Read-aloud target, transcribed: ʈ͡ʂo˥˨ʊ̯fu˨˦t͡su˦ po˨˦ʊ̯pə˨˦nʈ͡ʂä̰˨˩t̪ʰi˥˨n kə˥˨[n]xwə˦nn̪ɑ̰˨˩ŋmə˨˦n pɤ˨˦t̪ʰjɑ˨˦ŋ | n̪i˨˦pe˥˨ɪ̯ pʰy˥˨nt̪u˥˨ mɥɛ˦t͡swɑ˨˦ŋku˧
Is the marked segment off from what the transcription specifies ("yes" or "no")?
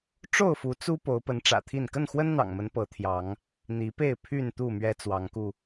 no